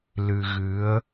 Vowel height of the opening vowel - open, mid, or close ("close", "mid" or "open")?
close